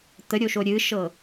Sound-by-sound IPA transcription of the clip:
t̪ ə ɾʲ o ʃ o ɾʲ ɨ ʃ ɤ

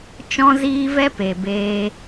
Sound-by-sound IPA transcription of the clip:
t͡ʃ ɔ̃˦ z iː˦ v ɛ˦ p e˨ b eː˧

